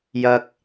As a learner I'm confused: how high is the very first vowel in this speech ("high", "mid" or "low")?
low